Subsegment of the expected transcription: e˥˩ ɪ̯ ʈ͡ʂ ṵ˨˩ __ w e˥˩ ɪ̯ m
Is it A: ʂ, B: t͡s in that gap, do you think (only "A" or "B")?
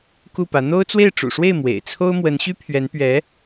A